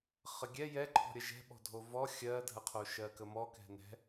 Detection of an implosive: present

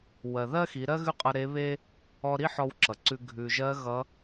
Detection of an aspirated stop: absent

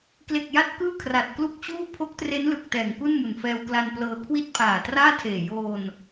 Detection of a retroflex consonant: absent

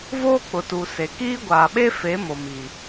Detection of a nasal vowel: absent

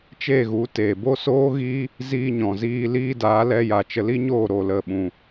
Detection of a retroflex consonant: absent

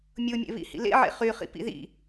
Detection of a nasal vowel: absent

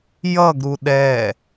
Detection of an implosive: present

